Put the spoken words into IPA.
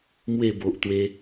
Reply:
m w e˥˧ b o˨ ʔ t̪ w e˧

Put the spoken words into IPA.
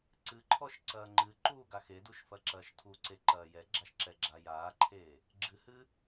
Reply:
ǀ ɨ ǃʰ ɔ ʃ ǀ ɐː ŋ͡ǃ ɨ ǃ uː ɡ a x e d u ʃ f ɐ ǁ ɐː ʃ tʰ u ǀ e ǃ ɐː j ɛ ɡ͡ǁ a ʃ ǁ ɛ ɡ͡ǁ a j aː ǃʰ eː | ɡ͡ǁ ɨ h ɨ

